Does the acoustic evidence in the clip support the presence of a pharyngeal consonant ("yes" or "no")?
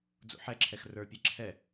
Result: yes